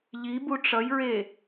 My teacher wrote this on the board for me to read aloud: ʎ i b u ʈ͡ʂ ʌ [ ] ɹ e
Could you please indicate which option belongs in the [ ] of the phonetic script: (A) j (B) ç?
A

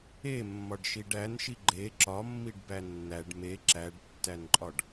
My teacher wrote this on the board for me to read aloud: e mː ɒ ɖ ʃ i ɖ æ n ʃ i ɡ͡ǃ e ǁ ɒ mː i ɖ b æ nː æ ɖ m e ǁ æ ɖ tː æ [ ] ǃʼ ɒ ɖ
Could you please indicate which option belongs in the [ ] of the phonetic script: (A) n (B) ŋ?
A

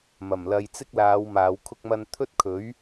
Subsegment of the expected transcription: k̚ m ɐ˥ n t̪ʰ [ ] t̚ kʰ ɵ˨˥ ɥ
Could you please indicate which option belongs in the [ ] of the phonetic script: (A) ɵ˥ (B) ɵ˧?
A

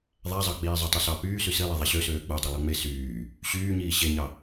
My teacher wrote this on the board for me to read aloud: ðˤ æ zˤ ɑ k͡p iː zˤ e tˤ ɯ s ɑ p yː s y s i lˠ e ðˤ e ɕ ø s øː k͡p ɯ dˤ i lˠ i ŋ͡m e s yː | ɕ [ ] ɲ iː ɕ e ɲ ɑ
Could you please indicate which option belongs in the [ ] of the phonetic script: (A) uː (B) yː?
B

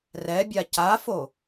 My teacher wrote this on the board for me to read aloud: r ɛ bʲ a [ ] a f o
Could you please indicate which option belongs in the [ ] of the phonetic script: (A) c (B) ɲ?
A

